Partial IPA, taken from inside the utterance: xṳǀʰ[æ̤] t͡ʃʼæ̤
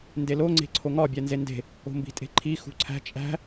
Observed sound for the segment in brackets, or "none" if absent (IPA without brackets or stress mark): æ̤